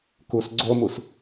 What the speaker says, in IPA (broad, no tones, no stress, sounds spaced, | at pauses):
k u s ɡ͡ǀ o m u s